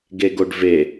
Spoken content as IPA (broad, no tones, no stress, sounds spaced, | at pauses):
ɡ e ɡ o ɖ v e